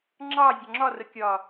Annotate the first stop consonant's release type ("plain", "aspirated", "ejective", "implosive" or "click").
click